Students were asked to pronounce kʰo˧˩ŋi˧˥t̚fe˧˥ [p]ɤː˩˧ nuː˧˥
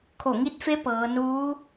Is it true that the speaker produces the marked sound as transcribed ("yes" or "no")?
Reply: yes